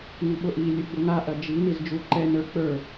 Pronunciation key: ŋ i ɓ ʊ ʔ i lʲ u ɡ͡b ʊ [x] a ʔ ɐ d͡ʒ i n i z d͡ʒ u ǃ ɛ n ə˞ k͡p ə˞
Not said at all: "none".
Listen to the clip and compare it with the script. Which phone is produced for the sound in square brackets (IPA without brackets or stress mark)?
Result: ŋ